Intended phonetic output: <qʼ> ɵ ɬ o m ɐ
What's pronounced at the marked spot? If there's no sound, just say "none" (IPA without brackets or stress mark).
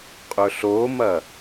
qʼ